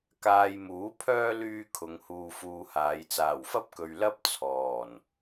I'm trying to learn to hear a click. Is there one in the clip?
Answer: no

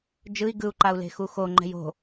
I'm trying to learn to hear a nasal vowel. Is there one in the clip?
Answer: no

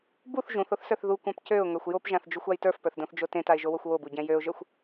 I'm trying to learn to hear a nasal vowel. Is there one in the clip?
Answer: yes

